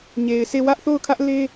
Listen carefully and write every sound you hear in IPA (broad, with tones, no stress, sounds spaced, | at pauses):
ɲ e˨ ɪ̯ sʰ e˦˨ w ä˦ ʔ θ o˦˨ ʊ̯ kʰ ä˦ ʔ l e˦